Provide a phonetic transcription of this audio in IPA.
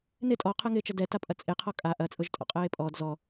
nɪ tʼɔqʰəːŋɪːt͡ʃɐ dɛtapʼɐ t͡sʼeqʰɔ kʼa ʔɐt͡sʼʊʒtʼɔ̰ qʼəːe̯pʼɔd zɔ

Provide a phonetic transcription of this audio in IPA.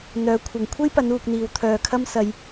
n̪œː˨˥kʷʰɐ˨ŋ kʷʰe˥jpɐ˨˧nuː˨k̚ n̪iː˨w t̪ʰœː˨kʰɐ˥msɐ˧j

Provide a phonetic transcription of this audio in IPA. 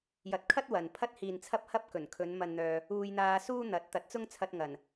jɐ˨˥t̚kʰɐ˥t̚ wɐ˨n pʰɐ˧t̚hiː˨nt͡sʰɐ˧p̚hɐ˧p̚ kɵ˨˩nkʰɵ˨˧n mɐ˨nn̪œː˨ | uː˧jn̪aː˧suː˥n̪ɐ˨˥t̚ t̪ɐ˨˥t̚t͡sʊ˥ŋt͡sʰɐ˧t̚ ŋɐ˨˩n

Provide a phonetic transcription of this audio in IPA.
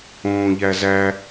õːʎæzæ

